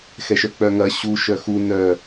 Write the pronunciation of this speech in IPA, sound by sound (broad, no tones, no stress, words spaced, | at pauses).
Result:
xɛʃœk͡pœŋɐ ɕu ʃœxu nœ